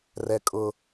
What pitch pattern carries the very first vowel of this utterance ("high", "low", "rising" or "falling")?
low